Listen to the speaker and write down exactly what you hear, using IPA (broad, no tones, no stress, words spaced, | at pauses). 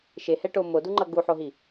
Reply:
ʃehɛʈo moduŋ͡ǃʌ ɡuħoɦi